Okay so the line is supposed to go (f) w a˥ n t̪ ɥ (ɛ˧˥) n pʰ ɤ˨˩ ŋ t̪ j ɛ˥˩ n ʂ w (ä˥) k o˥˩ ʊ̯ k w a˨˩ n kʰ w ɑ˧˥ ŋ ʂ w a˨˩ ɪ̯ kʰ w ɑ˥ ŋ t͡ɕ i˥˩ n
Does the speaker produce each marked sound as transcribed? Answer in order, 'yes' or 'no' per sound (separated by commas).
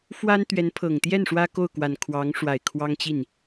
yes, yes, yes